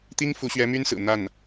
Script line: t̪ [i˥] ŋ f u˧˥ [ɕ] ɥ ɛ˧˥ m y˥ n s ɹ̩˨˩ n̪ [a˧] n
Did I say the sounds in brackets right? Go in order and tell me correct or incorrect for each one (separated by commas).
correct, correct, incorrect